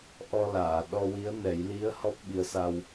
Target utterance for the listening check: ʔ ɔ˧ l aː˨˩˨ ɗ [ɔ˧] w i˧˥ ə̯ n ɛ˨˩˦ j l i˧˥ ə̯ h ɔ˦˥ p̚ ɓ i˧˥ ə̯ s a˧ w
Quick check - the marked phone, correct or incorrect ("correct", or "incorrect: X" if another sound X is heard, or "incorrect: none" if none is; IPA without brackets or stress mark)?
correct